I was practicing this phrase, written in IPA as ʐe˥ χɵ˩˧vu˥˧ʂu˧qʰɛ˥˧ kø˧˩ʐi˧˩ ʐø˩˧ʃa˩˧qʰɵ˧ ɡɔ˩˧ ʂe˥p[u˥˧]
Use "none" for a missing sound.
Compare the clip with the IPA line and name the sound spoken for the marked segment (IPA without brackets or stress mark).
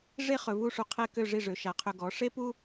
u˥